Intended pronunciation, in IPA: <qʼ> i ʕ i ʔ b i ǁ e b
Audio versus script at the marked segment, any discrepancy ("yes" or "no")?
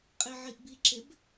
no